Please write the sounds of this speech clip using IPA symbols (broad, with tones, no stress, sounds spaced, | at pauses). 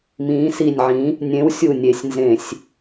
m ĩː˨˥ s i˧˩ nʲ ʕ ĩ˨˥ | nʲ ẽ˨˥ w sʲ u˧˩ nʲ e˧˩˧ sʲ n z ẽ˧˩˧ sʲ